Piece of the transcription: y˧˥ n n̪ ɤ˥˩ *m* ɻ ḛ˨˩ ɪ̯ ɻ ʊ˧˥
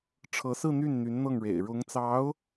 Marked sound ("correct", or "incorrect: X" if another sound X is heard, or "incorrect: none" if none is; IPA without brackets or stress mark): incorrect: ŋ